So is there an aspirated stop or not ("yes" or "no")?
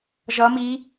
no